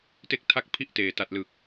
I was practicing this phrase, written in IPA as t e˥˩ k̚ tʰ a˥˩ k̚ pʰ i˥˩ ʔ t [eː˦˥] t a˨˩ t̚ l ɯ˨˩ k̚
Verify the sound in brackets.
incorrect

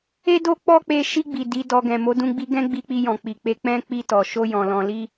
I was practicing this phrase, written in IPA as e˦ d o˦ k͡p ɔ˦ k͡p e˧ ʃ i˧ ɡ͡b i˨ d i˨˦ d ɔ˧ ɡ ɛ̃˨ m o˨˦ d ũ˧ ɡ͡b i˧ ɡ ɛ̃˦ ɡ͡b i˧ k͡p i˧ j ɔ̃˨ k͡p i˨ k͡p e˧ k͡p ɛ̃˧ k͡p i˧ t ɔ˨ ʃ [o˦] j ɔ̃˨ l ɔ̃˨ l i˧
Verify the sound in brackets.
incorrect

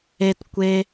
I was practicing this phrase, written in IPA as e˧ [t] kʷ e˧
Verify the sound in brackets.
correct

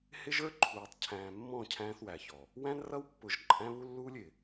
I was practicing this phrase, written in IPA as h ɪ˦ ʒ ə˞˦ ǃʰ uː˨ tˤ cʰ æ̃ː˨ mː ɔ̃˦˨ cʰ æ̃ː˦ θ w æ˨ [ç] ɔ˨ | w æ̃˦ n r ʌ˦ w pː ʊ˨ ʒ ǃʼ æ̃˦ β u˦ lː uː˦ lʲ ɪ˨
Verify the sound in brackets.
correct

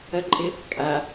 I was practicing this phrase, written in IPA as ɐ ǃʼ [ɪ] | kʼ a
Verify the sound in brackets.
correct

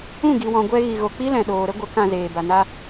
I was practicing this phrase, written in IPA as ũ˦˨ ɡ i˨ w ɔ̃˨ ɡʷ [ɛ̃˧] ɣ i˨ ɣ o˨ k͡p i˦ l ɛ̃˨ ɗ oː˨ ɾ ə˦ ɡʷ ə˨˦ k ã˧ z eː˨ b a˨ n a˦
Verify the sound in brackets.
incorrect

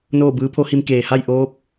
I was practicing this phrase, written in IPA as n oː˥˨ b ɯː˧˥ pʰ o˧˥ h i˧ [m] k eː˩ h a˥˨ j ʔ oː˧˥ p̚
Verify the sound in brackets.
correct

